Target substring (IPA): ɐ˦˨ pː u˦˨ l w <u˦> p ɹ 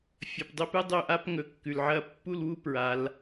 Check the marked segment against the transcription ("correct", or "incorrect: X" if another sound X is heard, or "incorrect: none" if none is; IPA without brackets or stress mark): correct